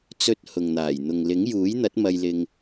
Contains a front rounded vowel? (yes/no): no